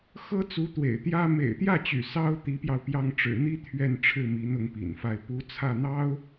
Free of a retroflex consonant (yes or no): no